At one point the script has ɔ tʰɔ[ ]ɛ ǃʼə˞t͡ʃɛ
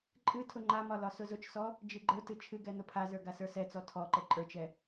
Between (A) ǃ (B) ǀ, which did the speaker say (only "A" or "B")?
A